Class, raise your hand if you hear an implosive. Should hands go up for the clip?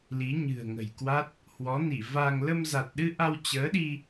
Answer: yes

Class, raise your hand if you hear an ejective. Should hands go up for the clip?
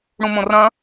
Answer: no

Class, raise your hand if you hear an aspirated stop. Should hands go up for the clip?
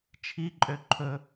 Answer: yes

